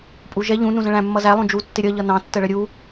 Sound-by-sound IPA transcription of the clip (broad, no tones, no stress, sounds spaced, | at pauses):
pʼ u ʒ ɛ ʎ ũ n ũ z ə̃ ɭ æ̃ mː ʌ z æ lˠ ũ d͡ʒ u tː ɪ ɾʲ ʌ ʎ ʌ n ɑ̃ tː ə ɭ ə ɾʲ u